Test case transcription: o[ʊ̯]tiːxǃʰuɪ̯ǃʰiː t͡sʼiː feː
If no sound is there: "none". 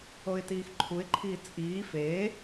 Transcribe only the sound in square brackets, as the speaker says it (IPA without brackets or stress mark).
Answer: ɪ̯